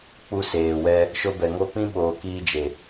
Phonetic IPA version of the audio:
k͡p u˧ s eː˨ w ɛ˧ | ʃ o˧ b ɛ˨ ŋ o˧ p ĩ˦ ɓ oː˨ k iː˧ d͡ʒ e˨

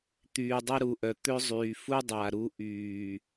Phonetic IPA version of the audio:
t̪ yː˨ dˤ ɐ˦ ɾ u˨ ʔ œ˨ t̪ ø˦ zˤ yː˨ f u˦ dˤ a˨ ɾ u˦ ʔ yː˨

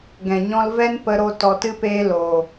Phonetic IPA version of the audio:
ɡ ɛ̃˨ ɲ ɔ̃˧ l v ɛ˦ n p ə˧ ɾ o˧ t ɔ˧ t ɨ˦ p eː˦ l oː˨

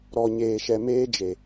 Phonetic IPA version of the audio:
ɾ ɔ˨ ɲ eː˨ ʃ ɛ˨ m eː˦ d͡ʒ e˨

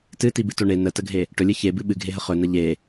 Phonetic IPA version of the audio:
t ɨ t i b ɨ t o ɳ e n ə t ə ɡʱ e | ʈ ɵ lʲ ɨ ç e b ɨ ɓ ɨ ɡʱ e ɦ ə χ ɵ n ə ʎ e

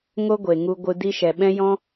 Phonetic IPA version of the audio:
ŋ o˦ ɡʷ e˨ ŋ u˧ ɡʷ ɨ˧ d i˧ ʃ ɛ˨ ɓ ɛ̃˦ j ɔ̃˦

